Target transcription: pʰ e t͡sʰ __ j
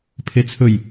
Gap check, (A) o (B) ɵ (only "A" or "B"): B